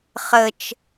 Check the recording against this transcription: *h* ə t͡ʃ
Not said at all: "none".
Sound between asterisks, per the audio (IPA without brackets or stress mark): χ